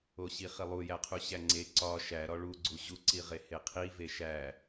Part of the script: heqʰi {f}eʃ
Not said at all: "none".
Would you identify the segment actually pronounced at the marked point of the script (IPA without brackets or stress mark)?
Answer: v